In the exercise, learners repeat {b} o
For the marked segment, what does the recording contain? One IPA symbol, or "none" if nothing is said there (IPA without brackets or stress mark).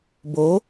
b